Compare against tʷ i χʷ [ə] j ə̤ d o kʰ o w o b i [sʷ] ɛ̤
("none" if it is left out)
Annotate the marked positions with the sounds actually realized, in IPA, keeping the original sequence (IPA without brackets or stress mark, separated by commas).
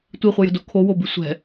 ə, sʷ